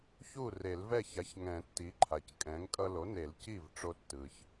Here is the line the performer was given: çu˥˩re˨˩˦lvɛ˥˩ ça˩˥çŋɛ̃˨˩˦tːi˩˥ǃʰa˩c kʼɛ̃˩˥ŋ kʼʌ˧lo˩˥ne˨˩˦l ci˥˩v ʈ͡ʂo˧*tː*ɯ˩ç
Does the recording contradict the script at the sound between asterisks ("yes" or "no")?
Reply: no